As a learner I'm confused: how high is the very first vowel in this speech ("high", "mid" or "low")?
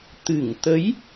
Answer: high